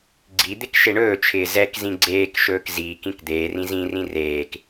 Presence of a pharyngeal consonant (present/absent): absent